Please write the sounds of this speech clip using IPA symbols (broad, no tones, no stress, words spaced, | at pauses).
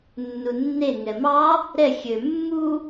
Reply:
nːunːe ŋɛmɑ | ɾɛ xʲø mːu